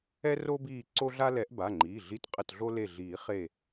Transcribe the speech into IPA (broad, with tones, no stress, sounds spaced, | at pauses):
ɛ˦ r o˦ b iː˧˩ ǀ o˦ ɮ a˦ l ɛ˨˩˦ ʔ b a˩˧˩ ŋ͡ǃ iː˩˧˩ ɮ i˧˩ t qʼ ə˧˩ t ɮ o˦ l e˧˩ ɮ iː˨˩˦ χ e˧˩